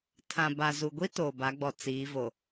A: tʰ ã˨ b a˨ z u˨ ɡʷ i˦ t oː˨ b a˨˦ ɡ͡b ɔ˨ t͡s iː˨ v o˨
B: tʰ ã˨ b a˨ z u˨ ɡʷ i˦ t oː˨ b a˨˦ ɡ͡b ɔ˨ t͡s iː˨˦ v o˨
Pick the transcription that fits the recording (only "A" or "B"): B